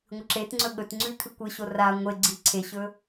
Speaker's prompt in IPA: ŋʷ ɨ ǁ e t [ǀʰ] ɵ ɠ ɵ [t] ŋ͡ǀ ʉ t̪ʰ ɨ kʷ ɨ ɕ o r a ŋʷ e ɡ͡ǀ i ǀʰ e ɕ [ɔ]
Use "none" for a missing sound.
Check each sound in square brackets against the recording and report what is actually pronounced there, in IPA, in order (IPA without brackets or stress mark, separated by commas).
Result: ŋ͡ǀ, t, ɵ